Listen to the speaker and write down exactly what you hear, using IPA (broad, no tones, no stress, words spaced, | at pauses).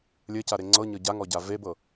lʲɘcaɾe ŋ͡ǀɤɲɤ ɟaŋɔɟa vebɤ